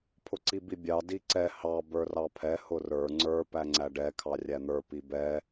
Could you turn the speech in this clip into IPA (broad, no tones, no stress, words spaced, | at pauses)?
pʰʊǀibibʲɑ diǀɛ hɑ bə˞rɑpʰɛ hʊrə˞ ŋ͡ǀə˞ pæŋ͡ǀæɖɛ kʰɑrʲæn̪ə˞ pibɛ